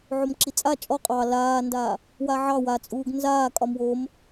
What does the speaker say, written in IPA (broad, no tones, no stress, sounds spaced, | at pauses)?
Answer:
ʕ o m ǁ i t͡sʼ a t͡ʃʼ ɔ qʼ ɑ l aː n d a | w a ʕ ɑ w a t͡sʼ uː ɡ n z aː kʼ ɒ m w o m